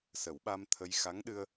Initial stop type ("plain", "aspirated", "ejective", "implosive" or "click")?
implosive